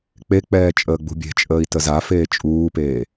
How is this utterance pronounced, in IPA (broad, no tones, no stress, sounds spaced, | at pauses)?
k͡p e k͡p ɛː t͡ʃʼ əː ɡ͡b ṳ bʲ e̤ t͡ʃʼ əː i̯ t ə z a f eː t͡ʃʼ uː p eː